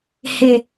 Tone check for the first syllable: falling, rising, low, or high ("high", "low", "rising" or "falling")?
low